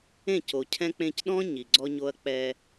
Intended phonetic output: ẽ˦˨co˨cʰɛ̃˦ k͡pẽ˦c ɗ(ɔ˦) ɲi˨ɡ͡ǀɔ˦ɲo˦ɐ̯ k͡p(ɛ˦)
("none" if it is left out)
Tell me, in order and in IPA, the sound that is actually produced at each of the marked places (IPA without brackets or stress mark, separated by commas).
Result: ɔ̃˦, ɛ˦